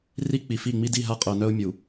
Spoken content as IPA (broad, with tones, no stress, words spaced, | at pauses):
ri˦k͡pi˨fi˦˨ ŋ͡mi˦di˦˨ɦa˦ qʼœ˨nœ˦ʊ̯ mʲu˨